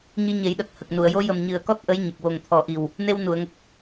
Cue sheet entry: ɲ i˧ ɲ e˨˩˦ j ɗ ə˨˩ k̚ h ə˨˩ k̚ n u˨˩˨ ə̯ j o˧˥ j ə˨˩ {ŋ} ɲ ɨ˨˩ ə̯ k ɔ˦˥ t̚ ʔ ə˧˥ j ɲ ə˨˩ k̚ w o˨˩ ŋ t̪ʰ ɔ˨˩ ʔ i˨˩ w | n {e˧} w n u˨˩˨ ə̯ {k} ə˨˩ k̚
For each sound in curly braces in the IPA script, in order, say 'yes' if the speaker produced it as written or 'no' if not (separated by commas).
no, yes, no